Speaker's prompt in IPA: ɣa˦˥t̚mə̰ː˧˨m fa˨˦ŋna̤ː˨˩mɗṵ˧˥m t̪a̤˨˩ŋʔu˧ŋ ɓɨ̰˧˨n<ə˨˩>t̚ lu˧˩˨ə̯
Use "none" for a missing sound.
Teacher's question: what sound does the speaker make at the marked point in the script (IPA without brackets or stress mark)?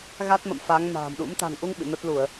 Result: ə˦˥